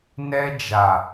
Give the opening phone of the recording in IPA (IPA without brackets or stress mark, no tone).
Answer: n